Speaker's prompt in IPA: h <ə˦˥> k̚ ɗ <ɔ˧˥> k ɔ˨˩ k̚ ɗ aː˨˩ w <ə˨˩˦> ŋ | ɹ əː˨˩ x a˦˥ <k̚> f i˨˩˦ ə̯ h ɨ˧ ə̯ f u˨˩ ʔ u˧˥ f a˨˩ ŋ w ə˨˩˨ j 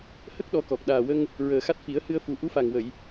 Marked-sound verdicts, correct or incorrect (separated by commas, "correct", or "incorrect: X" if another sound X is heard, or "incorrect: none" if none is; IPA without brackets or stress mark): correct, correct, incorrect: ə˧, incorrect: t̚